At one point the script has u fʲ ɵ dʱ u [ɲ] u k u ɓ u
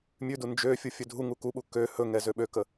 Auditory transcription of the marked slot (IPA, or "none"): ŋ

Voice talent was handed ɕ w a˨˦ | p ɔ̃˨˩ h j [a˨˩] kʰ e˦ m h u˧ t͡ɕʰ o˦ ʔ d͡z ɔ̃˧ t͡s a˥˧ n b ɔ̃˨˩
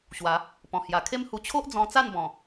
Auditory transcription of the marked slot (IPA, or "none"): a˨˩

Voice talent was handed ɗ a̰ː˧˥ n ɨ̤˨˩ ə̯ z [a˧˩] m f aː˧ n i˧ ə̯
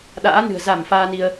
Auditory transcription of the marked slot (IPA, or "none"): a˧˩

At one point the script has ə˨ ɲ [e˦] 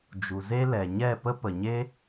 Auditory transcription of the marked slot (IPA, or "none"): e˦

